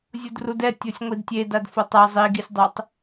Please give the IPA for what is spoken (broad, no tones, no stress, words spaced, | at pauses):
zʲudrudɛ tʲosʲŋʷidtʲe dadfotˤa zˤiɡisʲdˤɛtˤ